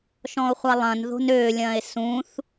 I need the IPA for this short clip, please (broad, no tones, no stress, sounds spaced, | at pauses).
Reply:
ʃ ɔ̃ o̯ χʷ a lˠ ɐ̃ n ð o̤ n ø lʲ ɐ̃ e̯ s ũ θ